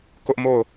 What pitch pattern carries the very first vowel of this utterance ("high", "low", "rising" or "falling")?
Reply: high